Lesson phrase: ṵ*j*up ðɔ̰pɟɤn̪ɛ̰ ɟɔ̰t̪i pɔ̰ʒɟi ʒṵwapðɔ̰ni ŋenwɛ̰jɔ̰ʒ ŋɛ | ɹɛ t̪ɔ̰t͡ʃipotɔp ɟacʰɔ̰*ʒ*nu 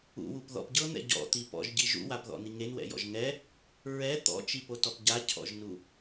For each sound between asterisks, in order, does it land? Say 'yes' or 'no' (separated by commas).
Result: no, yes